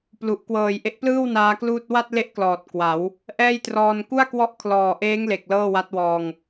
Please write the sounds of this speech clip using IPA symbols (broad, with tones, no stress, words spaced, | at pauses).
plu˨˩ʔ kwɤː˨˩jʔe˦˥ʔplɯː˥˩w naː˦˥kluː˥˩t̚ wa˥˩t̚le˦˥ʔklɔː˨˩t̚ kwa˩˦w | ʔɛː˥˩jtrɔː˧n ku˥˩a̯kwɔ˦˥ʔkʰlɔː˨˩ʔeː˦˥ŋ le˨˩k̚ lɤː˥˩wa˦˥t̚wɔː˧ŋ